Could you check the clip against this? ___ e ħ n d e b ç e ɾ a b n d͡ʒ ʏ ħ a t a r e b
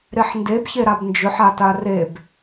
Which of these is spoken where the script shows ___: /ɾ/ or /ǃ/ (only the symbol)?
ɾ